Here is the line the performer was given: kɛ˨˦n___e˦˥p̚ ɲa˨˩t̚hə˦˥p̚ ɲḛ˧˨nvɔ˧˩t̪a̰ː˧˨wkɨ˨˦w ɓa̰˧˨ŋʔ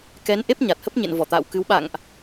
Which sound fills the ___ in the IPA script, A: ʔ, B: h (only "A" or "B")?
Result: A